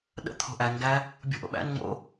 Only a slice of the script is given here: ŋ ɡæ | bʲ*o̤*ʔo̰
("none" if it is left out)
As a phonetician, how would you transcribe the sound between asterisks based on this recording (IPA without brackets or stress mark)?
o̤